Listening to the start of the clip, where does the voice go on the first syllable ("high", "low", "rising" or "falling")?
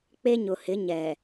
high